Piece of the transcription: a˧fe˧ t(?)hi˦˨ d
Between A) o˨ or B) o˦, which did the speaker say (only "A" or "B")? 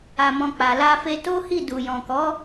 B